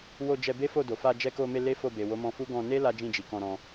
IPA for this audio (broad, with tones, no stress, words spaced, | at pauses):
wo˧ d͡ʒɛ˧ be˦fo˦˨do˨ fa˧d͡ʒɛ˧ko˧me˧ le˦fo˦˨be˨ wo˨˦mɔ̃˧fu˦ ɡɔ̃˧ne˦ la˦d͡ʒĩ˦˨d͡ʒi˨ kɔ̃˧ɾɔ̃˧